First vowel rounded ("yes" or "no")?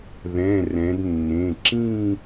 no